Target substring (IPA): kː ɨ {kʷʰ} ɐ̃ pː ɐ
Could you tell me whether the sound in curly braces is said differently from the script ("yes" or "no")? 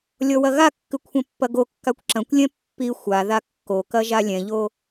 no